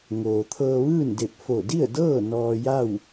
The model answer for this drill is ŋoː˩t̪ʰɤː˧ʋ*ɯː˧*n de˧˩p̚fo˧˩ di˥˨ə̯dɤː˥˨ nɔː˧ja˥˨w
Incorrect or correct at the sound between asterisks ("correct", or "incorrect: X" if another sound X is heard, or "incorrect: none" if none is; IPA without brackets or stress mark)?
incorrect: ɯː˥˨